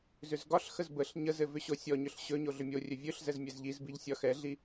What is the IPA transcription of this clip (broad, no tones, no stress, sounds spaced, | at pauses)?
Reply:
z ʏ z ɡ ɒ ɬ x ə z b ə ɬ ɲ ə z ɘ v ʏ ɕ o sʲ ɔ ɲ ʏ ɬ ɕ ɵ ɲ o ɮ ʏ mʲ o rʲ ɵ vʲ ɵ ɬ z ɛ z mʲ ɛ z ʎ i z b i ʎ sʲ ɒ x ɛ ɮ i